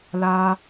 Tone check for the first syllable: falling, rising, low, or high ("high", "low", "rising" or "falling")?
low